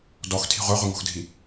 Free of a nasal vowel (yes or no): yes